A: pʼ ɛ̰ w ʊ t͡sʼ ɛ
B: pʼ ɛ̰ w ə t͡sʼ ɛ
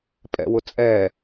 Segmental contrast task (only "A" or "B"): A